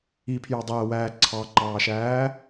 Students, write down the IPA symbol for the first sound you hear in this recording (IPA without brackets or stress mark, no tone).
i